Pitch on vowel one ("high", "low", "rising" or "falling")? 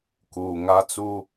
low